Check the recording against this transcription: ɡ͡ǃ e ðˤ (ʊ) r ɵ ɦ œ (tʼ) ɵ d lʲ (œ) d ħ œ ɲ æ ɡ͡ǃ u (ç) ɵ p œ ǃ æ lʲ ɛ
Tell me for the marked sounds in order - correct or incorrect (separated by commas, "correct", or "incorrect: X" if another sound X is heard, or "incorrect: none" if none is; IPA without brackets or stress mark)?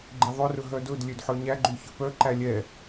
incorrect: ɵ, incorrect: d, incorrect: ø, correct